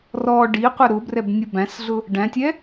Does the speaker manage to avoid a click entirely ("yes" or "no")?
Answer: yes